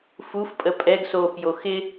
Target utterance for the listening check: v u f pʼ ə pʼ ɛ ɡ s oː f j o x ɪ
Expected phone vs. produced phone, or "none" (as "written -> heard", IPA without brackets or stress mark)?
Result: v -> f